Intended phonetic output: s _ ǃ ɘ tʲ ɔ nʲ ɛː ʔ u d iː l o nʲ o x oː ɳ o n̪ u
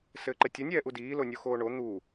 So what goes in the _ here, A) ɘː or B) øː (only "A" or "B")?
A